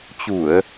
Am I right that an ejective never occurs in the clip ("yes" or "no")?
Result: yes